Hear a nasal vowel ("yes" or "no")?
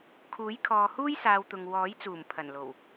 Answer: no